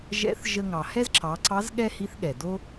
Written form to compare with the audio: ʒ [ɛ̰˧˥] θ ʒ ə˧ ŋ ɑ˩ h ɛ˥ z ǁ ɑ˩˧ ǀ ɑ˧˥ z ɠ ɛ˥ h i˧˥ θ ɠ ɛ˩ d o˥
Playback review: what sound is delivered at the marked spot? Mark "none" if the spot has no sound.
ɛ̰˧˥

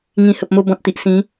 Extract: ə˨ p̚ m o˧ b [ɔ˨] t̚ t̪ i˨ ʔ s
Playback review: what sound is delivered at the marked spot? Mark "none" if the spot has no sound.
ɔ̃˨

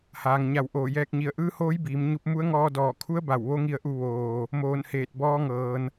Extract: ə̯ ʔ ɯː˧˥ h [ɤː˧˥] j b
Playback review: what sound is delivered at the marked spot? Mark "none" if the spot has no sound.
oː˧˥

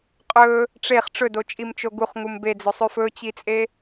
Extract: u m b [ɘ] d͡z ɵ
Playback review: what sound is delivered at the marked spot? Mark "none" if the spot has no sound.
e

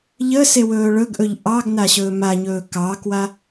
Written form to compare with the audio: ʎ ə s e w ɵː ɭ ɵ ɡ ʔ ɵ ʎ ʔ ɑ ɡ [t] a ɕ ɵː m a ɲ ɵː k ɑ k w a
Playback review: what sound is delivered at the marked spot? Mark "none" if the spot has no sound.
n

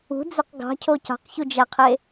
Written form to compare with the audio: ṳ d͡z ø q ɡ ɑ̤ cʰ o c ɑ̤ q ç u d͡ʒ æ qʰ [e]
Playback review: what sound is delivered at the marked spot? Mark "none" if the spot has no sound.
e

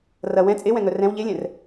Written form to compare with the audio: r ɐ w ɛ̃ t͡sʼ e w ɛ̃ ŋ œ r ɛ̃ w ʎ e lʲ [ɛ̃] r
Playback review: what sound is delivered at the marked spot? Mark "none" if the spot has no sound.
ɛ̃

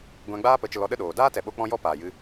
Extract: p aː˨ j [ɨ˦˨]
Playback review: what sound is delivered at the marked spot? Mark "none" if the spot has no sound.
ɨ˧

